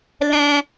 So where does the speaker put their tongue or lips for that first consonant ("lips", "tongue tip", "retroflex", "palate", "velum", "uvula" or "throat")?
tongue tip